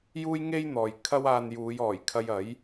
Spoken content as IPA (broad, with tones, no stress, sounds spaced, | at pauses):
j uː˥ j ŋ e˥ j n̪ ɔː˨ j kʰ ɐ˥ w aː˧ n j uː˨˧ j ɔː˨˩ j kʰ ɐ˧ j ɐ˨˥ j